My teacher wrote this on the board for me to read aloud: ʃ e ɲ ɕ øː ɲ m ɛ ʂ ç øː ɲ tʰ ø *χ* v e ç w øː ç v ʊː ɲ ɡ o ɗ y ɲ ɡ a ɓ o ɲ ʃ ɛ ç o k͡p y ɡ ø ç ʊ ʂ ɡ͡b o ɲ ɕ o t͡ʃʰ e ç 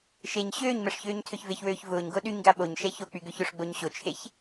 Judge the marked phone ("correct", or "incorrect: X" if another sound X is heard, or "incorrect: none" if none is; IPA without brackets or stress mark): incorrect: ç